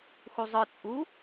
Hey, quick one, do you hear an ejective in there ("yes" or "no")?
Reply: yes